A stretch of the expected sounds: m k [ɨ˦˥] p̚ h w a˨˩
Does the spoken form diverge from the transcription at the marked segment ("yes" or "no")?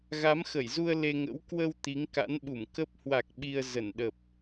yes